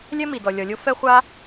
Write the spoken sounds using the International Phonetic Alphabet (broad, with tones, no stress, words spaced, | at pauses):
lʲɛ˥mi˩ dɔ˩lʲɔ˩lʲo˥ fɛ˥ χʷa˥